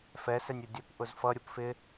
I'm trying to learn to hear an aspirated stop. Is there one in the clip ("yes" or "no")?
no